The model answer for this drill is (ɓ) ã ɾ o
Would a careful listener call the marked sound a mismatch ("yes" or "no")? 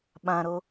no